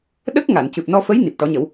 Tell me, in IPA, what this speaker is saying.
ɗ ə˦˥ k̚ ŋ a˨˩˨ n c ɨ˨˩ p̚ n ɔ˧ f ə˧˥ j n i˨˩ p̚ ʈ ɔ˨˩˦ ɲ ə˨˩˦ w

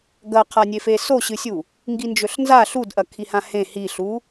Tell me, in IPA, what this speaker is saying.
ɡ ɐ qʰ a nʲ e f e s o ɕ ɨ sʲ u | ŋ ɡ i n d͡ʒ ɵ ɬ n z a ɬ u d ʔ ɐ kʰ i h ã h ẽ h i ɬ u

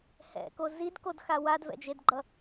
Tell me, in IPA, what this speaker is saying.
h ɛ̰ k o z i d k o d x a w a d v ɛ̰ d͡ʒ e d ɡ͡ǃ ʌ

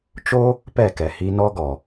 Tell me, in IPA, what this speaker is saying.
t͡ʃ o˦ | p ɛ˦˨ k ɛ˨ h i˧ n ɔ˦ ɡ ɔ˨

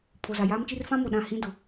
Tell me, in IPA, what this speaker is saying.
pʰ o˨ z a˨ j aː˦ m t͡ʃ i˦ r f ã˦ m o˨ ɗ ã˦˨ h ĩ˦ d ʊ˨

